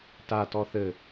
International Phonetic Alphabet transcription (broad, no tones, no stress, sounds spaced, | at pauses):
t a t ɔ θ ɘ